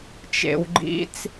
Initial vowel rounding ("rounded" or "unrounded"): unrounded